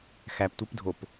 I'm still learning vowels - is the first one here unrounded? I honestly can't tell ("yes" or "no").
yes